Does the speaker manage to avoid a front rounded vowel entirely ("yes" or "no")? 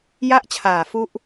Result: yes